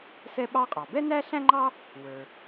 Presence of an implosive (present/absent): present